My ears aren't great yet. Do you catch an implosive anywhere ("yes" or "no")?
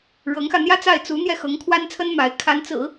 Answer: no